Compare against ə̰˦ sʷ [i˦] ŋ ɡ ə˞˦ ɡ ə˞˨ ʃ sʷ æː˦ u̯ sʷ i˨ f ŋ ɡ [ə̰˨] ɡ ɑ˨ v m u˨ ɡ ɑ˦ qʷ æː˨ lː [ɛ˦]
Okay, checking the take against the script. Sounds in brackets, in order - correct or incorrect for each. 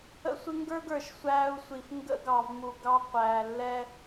incorrect: ɪ˦, incorrect: ə̰˦, correct

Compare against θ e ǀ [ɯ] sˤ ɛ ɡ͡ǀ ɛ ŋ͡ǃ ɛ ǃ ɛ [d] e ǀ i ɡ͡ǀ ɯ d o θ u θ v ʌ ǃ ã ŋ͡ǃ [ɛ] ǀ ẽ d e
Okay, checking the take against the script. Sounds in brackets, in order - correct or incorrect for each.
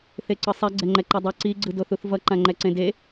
correct, incorrect: dˤ, correct

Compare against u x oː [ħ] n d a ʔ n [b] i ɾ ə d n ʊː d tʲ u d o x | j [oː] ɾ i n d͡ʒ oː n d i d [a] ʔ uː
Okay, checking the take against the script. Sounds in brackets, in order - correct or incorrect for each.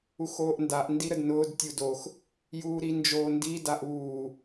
incorrect: ʔ, incorrect: d, incorrect: uː, correct

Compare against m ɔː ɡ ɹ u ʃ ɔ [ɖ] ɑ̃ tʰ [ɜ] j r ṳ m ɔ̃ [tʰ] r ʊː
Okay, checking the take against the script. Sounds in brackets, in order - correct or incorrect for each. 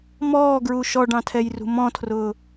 correct, incorrect: ɛ, correct

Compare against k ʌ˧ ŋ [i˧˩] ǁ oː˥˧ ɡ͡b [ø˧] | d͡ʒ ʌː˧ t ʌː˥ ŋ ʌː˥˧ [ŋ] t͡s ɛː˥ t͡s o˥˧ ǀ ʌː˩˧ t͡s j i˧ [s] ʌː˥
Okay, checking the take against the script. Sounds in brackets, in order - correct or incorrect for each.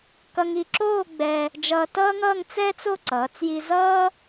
incorrect: i˧, incorrect: ɛ˧, correct, incorrect: z

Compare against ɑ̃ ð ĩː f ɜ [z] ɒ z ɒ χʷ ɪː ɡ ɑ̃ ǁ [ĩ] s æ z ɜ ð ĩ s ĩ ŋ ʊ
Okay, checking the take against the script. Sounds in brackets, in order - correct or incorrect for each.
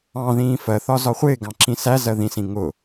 incorrect: θ, correct

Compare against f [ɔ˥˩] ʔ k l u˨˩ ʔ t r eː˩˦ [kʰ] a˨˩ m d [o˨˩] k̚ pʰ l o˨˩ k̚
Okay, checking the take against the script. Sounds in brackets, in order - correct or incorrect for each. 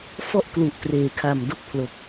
correct, correct, incorrect: o˥˩

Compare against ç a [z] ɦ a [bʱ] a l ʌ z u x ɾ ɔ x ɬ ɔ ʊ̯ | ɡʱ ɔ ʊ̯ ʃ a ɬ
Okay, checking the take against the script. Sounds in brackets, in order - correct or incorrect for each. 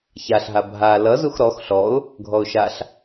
incorrect: ɬ, correct

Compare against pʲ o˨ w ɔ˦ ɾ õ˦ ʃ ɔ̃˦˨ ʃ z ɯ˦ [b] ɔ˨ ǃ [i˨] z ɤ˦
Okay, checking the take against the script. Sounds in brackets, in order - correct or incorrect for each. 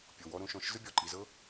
incorrect: bʲ, correct

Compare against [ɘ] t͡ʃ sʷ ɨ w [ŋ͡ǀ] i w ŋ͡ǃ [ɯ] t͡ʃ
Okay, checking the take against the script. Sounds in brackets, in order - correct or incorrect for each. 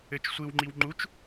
correct, incorrect: ŋ͡ǃ, incorrect: u

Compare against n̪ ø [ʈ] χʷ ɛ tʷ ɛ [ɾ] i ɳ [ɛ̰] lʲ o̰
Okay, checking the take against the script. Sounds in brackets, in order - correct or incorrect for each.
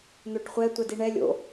correct, incorrect: d, incorrect: ɛ

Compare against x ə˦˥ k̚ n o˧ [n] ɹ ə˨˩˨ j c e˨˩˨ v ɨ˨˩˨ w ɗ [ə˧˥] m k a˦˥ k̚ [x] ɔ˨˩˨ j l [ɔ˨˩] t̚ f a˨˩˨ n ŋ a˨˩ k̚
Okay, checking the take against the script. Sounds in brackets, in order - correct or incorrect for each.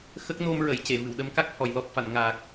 incorrect: m, correct, incorrect: h, correct

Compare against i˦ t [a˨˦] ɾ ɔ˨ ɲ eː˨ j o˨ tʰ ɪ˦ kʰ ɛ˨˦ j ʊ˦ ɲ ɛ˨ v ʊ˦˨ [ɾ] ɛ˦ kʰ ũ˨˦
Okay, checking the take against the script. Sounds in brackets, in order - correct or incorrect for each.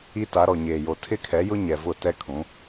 correct, incorrect: t

